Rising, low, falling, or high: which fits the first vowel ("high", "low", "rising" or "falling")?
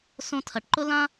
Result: high